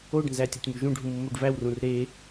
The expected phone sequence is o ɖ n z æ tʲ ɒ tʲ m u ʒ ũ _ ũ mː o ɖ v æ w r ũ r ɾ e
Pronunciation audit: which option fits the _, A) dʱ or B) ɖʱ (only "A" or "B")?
B